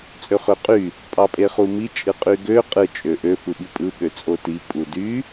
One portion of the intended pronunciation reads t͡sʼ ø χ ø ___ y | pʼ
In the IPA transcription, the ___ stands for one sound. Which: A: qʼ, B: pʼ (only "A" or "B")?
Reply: A